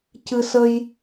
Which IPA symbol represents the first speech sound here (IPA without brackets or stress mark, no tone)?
c